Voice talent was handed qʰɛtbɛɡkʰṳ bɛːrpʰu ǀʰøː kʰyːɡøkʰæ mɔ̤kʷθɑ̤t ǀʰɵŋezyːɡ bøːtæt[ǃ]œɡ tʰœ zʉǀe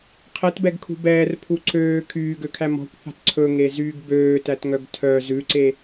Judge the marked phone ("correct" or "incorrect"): incorrect